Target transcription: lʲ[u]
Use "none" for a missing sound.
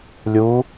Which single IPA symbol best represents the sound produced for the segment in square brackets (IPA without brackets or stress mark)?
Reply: u